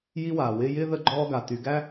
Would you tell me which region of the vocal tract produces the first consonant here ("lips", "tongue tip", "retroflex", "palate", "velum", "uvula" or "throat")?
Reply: palate